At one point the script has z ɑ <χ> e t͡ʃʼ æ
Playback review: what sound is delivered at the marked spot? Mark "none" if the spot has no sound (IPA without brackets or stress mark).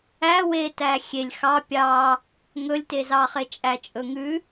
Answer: χ